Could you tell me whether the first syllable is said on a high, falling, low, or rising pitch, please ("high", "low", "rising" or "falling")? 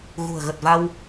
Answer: low